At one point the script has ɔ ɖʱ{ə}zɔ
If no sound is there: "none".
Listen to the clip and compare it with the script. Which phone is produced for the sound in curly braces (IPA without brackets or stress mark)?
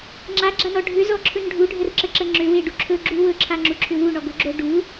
ʏ